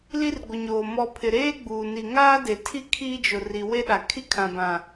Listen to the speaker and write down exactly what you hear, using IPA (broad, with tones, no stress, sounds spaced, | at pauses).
l i˦ r ɡʷ ɪ˨ ɲ oː˨ m ɔ˨ pʰ ɪ˨ ɾ eː˦ ɡ͡b uː˨ n i˨ ŋ aː˦ d e˨ tʰ i˦ kʰ iː˦ d͡ʒ ʊ˨ r i˨ w e˦ ɗ a˨ kʰ i˦ kʰ ã˨ b ã˨